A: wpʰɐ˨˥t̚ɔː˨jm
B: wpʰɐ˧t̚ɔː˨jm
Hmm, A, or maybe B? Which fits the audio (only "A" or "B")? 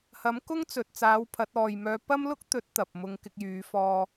A